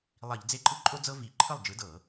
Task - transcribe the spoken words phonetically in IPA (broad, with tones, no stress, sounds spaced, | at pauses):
lˠ i˧˩˧ ʎ d͡z e˥˩ ǃʼ ɯ˥ ǃʼ o˥ d͡z ɤ˥ v i˧˩˧ ǃʰ ɯ˥˩ lˠ d͡ʒ ɯ˨˥ d ɤ˧˩˧